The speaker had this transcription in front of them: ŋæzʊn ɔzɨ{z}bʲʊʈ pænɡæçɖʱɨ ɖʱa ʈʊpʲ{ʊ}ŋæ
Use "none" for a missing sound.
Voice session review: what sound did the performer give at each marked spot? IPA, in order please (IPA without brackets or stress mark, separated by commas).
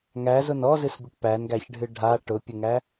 s, ʊ